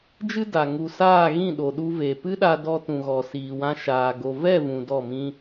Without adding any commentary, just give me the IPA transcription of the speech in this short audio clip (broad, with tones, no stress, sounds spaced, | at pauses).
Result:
d͡ʒ ɨ˦ d a˨ ŋ u˨ s aː˦˨ ɣ ĩ˦˨ ɗ o˨ ɗ u˧ v e˨ p ɨ˦ ɗ a˧ d ɔ˧ t ũ˨ ɣ ɔ˨ s iː˨ w ã˧ ʃ aː˨ ɡ o˨ v ɛ˦˨ v ũ˨ d ɔ˦˨ m ĩ˦